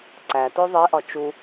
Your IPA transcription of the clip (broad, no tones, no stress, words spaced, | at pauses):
ǀæto ðˤeʔɒ t͡ʃu